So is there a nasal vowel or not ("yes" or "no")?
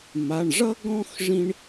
yes